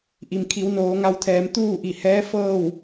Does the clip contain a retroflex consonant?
no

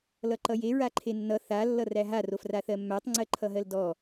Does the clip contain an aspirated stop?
yes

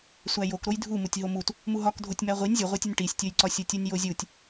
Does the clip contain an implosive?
no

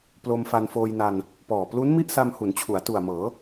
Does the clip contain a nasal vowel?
no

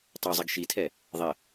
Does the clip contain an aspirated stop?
yes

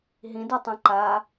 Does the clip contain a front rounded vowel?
no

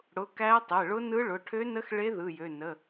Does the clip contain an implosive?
no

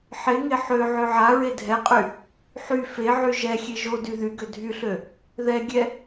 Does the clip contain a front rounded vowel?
yes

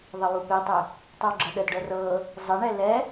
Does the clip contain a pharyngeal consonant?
no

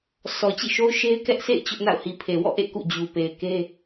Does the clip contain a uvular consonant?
no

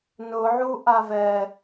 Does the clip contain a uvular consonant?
no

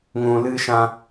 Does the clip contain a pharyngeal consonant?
no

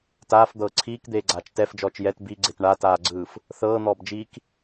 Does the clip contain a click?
yes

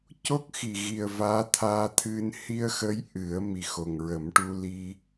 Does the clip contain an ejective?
no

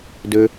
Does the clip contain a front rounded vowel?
yes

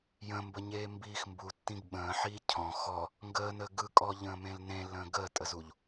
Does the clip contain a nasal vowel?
yes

